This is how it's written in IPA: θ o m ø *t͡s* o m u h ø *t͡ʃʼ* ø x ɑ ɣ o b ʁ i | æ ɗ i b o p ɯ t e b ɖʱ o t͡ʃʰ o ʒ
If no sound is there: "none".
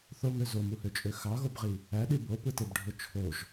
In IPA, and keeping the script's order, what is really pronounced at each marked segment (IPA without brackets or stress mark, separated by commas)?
z, t͡ʃʼ